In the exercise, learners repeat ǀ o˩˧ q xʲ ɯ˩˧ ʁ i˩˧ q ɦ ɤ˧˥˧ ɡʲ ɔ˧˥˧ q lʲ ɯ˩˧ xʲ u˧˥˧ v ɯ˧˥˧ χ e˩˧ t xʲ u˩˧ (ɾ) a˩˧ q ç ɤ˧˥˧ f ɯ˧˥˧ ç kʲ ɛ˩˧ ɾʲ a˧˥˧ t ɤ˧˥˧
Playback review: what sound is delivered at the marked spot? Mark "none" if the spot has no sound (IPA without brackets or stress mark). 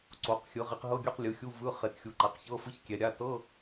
ǃ